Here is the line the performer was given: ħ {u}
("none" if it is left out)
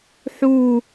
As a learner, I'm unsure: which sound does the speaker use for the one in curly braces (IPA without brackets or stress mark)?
u